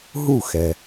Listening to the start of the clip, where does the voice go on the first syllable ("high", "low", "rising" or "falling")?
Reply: falling